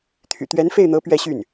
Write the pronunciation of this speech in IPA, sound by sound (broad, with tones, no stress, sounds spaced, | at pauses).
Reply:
t̪ʰ y̰˨˩ t̪ ɥ ɛ˧˥ n f e˥˩ ɪ̯ n̪ ɤ˧˥ p ɥ ɛ˥˧ ɕ y˥˩ n